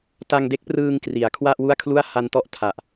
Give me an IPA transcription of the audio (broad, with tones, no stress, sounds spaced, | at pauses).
t a˧ ŋ d e˦˥ k̚ p r ɯː˧ ŋ k r i˩˦ a̯ kʰ w a˥˩ ʔ w u˥˩ a̯ kʰ l u˥˩ a̯ h a˧ n t ɔ˥˩ ʔ tʰ a˨˩ ʔ